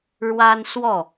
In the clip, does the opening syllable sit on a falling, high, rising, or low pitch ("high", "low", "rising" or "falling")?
high